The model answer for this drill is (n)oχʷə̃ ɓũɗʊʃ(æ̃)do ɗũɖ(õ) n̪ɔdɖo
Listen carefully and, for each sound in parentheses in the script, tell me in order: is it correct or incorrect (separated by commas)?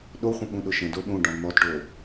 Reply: incorrect, incorrect, incorrect